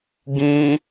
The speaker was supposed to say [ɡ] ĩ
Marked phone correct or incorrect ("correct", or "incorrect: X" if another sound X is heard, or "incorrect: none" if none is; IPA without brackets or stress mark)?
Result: correct